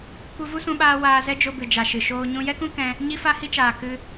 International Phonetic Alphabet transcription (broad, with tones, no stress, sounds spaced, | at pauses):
kʷ ɨ˧ v u˦ s ũ˧ ɓ aː˧ w aː˧ z ɛ˦ d͡ʒ o˧ b ɨ˨ d͡ʒ a˨ ʃ ɨ˨ ʃ oː˧ ɲ ũ˦ j ɛ˦ k ũ˦ k ɛ̃˧ | ɲ i˦ f a˦ h i˦ t͡ʃ aː˨ k ɨ˧